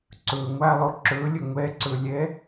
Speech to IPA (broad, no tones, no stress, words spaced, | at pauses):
ǀɵ ŋʷalˠo ǁɵlʲə ŋʷɛǀɵlʲɛ